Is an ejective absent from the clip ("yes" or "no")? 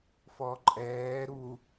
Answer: no